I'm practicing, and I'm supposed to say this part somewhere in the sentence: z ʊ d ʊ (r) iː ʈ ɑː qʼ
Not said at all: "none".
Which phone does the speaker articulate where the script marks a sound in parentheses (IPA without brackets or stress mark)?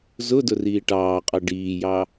r